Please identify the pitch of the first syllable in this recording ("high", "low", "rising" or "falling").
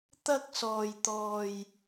high